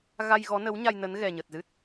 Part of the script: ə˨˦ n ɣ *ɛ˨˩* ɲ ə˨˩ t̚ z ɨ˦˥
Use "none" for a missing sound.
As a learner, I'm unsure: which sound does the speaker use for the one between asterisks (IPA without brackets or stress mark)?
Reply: ɛ˨˩